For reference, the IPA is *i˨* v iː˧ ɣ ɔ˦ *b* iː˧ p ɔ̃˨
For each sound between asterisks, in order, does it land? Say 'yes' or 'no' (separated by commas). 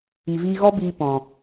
yes, yes